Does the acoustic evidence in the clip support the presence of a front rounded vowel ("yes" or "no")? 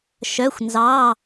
yes